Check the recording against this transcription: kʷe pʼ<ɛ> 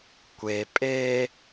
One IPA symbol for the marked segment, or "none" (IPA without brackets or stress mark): e